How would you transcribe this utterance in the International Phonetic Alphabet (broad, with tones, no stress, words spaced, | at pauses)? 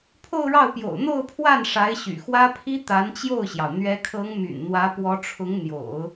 pʰo˥˧ʊ̯ɻɑ˥˩ʊ̯pjo̰˨˩ʊ̯ n̪o˥˧ʊ̯pʰwa˥˩n ʂa˧˥ɪ̯ɕy̰˨˩xwä˥ pʰi˥t̪a˧˥nt͡ɕjo˥˩ʊ̯ɕjɑ˩ʊ̯ n̪ɥɛ˧˥kʰɤ˧˥ŋ my̰˨˩nn̪wä˧˥pwɔ˧˥ʈ͡ʂʰʊ˧˥ŋ n̪jo̰˨˩˦ʊ̯